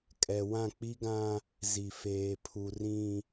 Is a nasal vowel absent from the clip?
no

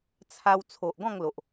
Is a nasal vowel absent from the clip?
no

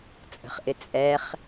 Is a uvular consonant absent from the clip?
no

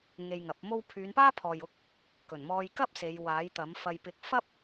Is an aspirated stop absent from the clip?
no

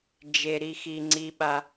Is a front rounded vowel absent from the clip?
yes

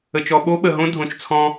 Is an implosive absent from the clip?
no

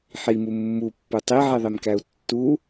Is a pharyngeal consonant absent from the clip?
no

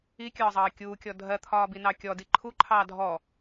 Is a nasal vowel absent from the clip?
yes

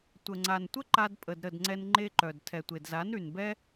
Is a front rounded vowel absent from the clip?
no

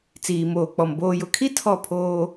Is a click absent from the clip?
yes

